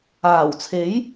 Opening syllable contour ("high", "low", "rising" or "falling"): low